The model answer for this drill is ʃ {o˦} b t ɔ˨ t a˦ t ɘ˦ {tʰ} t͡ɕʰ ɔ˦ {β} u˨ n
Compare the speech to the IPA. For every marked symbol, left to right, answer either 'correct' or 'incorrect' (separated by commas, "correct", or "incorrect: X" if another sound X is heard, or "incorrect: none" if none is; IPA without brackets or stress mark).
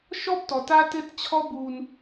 incorrect: ɔ˦, incorrect: t, incorrect: b